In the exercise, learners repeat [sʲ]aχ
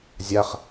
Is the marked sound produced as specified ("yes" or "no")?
no